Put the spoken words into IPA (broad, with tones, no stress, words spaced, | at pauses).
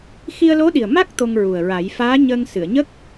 xi˧ə̯lo˧˥ɗi˨˩ə̯ ma˦˥k̚ t̪o˧ŋɹu˨˩ə̯ɹa˨˩˦j faː˧˥ɲəː˧ŋsɨ˨˩˨ə̯ɲə˦˥k̚